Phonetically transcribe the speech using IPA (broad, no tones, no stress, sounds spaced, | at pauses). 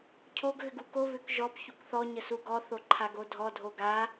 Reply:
cʰ o ɡ ɣ ʏ ɡ u k o β ʏ k ʒ ɔ p ç u k θ ɔ ɲ ə s u ɡ ɔ θ o ǃʰ a ɡ o dʱ ɔ dʱ o ɡ a